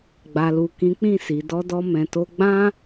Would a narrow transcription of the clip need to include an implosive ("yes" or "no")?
no